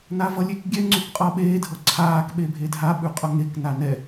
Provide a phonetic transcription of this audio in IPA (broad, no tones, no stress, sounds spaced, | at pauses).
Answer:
n a v ʌ lʲ e k ɡʲ ɛ ŋ͡ǀ ʉ k qʼ ʌ ɓ eː dʱ ʌ ǀʰ aː k ɓ e bʱ e dʱ a ɓ ʉ qʼ ʌ ŋ e k n a n ɛ